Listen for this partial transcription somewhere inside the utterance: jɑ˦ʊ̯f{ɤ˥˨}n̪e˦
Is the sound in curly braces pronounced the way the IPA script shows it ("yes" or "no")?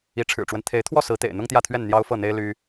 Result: yes